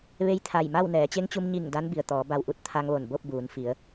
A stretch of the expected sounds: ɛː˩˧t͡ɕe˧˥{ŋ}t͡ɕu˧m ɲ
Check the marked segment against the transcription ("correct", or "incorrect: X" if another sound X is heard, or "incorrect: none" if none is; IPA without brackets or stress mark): correct